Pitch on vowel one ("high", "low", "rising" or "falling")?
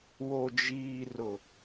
low